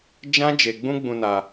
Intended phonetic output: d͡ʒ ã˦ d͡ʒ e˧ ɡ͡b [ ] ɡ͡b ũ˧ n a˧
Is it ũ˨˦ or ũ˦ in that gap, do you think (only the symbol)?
ũ˦